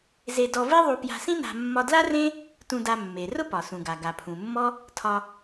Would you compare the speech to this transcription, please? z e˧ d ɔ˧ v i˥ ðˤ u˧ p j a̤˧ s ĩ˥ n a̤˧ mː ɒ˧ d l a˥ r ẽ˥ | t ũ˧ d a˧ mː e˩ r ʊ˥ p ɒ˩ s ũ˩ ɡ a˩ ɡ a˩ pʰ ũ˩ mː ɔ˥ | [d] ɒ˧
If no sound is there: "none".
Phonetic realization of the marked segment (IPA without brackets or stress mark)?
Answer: tʰ